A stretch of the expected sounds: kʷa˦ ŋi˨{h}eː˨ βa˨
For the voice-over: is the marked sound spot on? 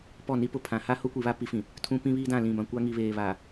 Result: no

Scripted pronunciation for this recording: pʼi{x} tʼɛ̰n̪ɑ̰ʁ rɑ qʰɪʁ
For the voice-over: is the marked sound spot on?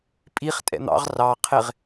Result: no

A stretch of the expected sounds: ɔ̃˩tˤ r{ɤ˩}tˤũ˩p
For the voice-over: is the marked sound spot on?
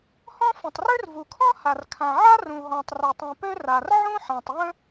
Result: no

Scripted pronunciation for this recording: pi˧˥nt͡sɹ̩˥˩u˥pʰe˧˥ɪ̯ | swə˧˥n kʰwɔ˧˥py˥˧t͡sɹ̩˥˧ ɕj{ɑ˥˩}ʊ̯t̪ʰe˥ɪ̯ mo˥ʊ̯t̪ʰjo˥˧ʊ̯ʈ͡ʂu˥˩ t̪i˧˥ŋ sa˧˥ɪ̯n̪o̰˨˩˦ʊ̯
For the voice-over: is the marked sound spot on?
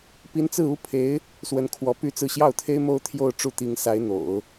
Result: yes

